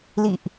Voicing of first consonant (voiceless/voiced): voiced